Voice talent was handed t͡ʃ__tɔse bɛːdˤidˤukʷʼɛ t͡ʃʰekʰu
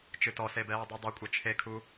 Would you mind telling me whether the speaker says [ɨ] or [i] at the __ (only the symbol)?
ɨ